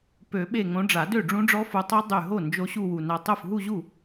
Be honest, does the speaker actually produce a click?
no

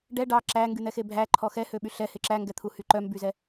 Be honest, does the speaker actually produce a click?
yes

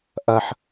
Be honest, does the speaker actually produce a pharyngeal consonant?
yes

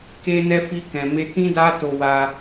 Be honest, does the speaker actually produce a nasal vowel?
yes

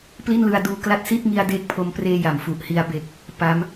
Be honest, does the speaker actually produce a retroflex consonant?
no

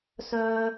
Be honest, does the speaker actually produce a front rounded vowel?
yes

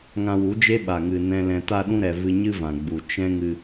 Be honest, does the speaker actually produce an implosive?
yes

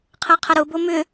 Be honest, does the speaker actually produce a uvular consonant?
yes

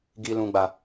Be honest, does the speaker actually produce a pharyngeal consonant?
no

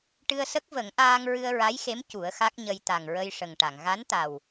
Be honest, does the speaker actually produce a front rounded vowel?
no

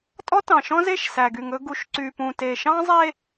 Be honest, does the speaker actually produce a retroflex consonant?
no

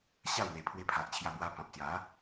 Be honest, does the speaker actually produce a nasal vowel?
yes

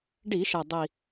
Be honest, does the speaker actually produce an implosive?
no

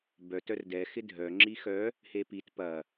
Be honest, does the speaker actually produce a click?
yes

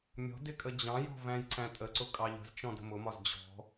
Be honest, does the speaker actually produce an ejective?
yes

